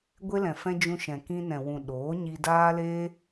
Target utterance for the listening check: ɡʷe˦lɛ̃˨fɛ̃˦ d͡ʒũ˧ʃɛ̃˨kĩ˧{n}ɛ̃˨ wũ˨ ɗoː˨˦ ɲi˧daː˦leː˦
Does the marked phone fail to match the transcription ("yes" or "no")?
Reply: no